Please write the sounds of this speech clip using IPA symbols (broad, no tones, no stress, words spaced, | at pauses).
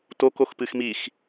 tok oxpɨxmix